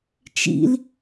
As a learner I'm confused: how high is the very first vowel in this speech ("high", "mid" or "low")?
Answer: high